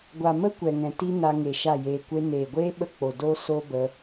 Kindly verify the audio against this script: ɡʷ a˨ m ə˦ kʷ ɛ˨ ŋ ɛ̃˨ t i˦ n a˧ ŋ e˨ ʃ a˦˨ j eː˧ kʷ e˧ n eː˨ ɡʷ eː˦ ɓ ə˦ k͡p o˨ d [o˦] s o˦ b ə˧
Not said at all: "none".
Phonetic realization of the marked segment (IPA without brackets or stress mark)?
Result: o˦